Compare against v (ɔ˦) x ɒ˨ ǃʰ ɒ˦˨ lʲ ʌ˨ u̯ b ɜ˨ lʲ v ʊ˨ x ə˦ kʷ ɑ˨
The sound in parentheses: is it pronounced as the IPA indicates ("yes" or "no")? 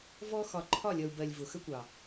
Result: yes